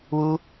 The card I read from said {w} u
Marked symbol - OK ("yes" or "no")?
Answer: yes